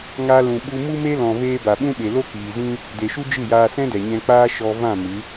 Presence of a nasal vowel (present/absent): present